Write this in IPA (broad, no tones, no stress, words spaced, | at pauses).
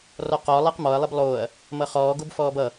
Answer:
rɔqɔ lˠeqmɔɐ̯ lˠeblˠoːɐ̯ | mʌχɔː ɡobfɔːbʌ